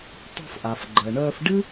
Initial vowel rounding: rounded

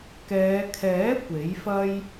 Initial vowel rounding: unrounded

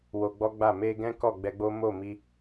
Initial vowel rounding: rounded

